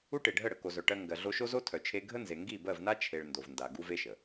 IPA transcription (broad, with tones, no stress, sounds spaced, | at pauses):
u˦ ʈ e˨ ɖʱ ə˦˨ ɽ ə˨ k o˨ z œ˨ ʈ ɜ˧ ŋ ɡ ɜ˨ ɮ o˧ ʃ o˦ z o˦ tʰ œ˨ t͡ʃʰ e˧ ɡʱ ə˦ n z e˨ ŋ ɡ i˦˨ b ɜ˦˨ v n a˦ t͡ʃʰ e˧ ɭ n d o˨ v n d a˨ ɡ u˦ v e˦ ʃ ə˨